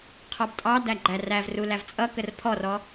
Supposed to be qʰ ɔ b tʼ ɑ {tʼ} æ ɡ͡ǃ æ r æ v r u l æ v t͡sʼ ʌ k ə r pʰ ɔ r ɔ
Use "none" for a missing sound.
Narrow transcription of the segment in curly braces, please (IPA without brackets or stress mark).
d